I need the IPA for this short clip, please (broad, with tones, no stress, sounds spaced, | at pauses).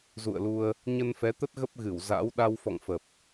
z ṵ˧˨ ə̯ l u˧ ə̯ | ɲ ə˧ n f ɛ˨˦ t̪ ə˦˥ t̚ ɣ ə˦˥ p̚ ɣ ɨ˧˩ w z a̰˧˥ w ɗ a˧ w f ɔ̰˧˨ ŋ f ə˨˩ p̚